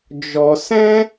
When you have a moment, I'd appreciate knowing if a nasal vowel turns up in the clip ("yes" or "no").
yes